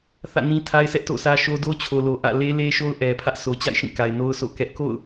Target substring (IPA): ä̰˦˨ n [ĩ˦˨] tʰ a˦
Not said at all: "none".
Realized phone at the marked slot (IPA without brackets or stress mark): ĩ˦